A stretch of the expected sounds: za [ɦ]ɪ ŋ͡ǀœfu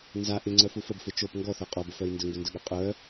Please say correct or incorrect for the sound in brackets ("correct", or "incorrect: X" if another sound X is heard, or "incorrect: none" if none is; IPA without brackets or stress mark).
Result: incorrect: ʔ